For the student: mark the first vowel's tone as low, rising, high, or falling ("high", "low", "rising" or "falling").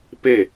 falling